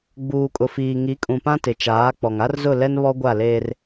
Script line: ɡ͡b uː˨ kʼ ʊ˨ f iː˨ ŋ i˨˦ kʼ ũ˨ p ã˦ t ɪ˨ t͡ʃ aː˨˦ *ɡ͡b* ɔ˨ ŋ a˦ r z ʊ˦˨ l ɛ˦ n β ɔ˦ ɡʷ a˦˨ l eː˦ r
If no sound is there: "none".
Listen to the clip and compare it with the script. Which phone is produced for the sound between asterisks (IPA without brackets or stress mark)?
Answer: k͡p